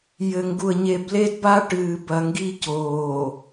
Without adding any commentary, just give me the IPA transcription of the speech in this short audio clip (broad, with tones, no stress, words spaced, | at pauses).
jɘ˨ŋɡu˨ə̯ɲe˨b le˦dba˦ ʈɨː˨bɐ˨ŋɡi˦ coː˨